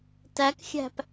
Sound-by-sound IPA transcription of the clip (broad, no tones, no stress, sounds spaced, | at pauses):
t æ k xʲ æ̤ p